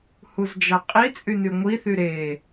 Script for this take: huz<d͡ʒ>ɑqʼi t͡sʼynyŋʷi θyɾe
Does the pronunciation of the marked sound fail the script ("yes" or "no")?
no